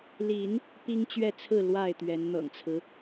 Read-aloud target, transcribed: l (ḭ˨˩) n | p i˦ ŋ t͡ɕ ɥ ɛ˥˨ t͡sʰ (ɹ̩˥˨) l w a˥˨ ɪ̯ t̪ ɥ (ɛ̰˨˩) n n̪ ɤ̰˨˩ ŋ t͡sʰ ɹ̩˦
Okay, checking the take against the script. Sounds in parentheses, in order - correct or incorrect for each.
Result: incorrect, correct, incorrect

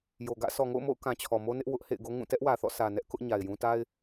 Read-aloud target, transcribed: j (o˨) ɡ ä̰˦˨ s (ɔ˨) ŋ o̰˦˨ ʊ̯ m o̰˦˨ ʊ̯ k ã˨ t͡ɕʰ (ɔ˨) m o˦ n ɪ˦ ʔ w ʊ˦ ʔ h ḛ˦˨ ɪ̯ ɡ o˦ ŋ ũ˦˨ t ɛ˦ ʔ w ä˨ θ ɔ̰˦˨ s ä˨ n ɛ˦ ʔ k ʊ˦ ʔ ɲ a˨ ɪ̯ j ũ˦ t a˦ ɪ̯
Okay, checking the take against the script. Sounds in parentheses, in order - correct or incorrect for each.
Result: correct, correct, correct

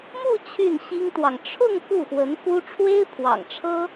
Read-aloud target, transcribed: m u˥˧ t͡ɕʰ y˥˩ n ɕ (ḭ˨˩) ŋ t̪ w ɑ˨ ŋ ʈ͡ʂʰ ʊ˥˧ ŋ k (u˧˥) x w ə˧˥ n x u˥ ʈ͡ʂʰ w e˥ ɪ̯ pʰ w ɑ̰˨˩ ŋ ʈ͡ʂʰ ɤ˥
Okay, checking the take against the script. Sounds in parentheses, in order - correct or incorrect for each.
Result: incorrect, incorrect

